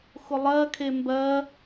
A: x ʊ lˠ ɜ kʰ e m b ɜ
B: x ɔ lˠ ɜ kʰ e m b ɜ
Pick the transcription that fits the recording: A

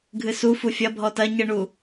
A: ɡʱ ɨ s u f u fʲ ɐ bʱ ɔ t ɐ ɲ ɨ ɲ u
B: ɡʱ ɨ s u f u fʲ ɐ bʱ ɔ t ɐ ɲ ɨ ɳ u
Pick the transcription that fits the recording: B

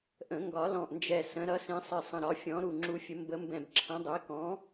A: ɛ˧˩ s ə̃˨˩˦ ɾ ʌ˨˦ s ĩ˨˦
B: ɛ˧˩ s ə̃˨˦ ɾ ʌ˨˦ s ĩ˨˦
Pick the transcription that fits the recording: B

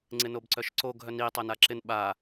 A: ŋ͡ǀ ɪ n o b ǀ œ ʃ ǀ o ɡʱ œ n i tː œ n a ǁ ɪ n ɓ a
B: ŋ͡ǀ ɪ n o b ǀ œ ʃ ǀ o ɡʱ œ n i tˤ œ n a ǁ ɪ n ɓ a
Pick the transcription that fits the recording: B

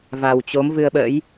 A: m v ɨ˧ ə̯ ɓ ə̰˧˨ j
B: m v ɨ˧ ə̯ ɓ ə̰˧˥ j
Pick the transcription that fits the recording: B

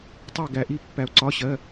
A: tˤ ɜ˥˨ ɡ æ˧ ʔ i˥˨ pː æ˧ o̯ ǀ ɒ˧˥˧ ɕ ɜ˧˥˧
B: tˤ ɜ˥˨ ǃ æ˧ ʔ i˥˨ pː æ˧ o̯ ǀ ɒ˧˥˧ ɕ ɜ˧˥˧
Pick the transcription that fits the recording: A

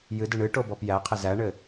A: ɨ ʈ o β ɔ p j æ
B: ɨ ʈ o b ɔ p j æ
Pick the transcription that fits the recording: B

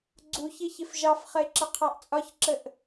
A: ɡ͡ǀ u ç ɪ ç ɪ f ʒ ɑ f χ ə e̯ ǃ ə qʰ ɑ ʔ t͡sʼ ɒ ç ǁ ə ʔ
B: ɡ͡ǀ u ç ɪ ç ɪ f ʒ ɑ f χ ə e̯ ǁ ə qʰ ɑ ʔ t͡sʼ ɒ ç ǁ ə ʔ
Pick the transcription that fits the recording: B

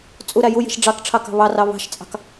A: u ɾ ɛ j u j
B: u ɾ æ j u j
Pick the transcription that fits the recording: B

